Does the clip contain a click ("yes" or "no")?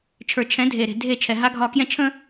no